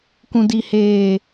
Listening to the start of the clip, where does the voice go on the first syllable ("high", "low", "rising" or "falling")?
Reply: low